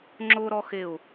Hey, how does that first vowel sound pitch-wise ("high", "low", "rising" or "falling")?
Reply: high